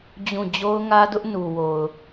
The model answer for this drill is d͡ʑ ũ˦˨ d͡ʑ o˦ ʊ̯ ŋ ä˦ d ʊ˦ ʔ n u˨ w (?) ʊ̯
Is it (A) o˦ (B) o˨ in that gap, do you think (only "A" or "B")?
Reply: B